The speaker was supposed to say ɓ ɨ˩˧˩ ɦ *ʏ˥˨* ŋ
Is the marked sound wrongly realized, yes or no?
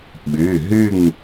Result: yes